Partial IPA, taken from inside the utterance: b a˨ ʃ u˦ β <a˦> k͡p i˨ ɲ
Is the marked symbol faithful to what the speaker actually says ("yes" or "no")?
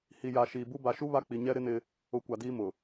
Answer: yes